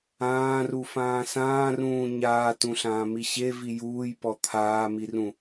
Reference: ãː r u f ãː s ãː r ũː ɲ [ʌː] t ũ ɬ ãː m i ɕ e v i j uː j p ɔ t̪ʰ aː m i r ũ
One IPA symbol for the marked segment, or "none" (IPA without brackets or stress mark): aː